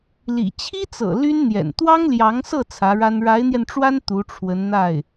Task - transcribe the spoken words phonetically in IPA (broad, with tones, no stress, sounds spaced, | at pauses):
l ḭ˨˩ t͡ɕʰ i˥ t͡s ɤ̰˨˩ l y˥ n n̪ j ɛ̰˨˩ n t̪ w ɑ˥ ŋ l j ɑ˧˥ ŋ s ɤ˥˩ t͡sʰ ä˧˥ ɻ a˥ n ɻ a˧˥ ɪ̯ n̪ j ɛ˧ n ʈ͡ʂ w a˥ n t̪ u˧˥ ʈ͡ʂʰ w ə˧˥ n n̪ a˥˩ ɪ̯